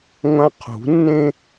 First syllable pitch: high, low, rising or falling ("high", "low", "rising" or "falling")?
high